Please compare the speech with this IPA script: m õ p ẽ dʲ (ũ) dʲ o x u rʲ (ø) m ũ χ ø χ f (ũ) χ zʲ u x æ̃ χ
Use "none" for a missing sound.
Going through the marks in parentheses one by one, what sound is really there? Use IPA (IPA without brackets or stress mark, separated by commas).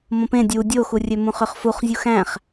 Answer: u, ø, u